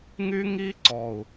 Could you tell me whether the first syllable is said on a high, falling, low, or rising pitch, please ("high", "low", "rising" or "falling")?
high